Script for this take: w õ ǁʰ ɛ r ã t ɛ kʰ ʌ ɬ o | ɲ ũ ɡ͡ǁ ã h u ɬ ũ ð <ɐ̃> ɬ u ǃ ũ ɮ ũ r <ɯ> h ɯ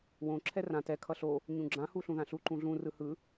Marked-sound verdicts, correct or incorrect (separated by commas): incorrect, correct